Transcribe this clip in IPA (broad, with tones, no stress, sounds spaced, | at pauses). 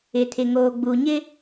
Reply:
ɪ˨ tʰ ɪ˨ ŋ oː˨ ɡ͡b u˨ ɲ ɪ˦